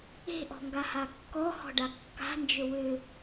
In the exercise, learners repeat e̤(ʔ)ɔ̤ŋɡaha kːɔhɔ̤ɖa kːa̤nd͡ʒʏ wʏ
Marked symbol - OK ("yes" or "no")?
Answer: yes